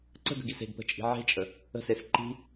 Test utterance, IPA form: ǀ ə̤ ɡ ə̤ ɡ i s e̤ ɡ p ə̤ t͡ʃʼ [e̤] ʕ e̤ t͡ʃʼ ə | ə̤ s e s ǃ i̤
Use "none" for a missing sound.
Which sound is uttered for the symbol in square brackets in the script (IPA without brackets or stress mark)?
i̤